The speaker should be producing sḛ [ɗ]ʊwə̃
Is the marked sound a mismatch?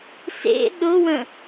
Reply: no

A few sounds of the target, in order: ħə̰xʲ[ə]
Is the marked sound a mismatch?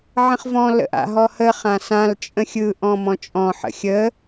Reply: no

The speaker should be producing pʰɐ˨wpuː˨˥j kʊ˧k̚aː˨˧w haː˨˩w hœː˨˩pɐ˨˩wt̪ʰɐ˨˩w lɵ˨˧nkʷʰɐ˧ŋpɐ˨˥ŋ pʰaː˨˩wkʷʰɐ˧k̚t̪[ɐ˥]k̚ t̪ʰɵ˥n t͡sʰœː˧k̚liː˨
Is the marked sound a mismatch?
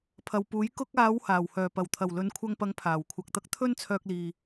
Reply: no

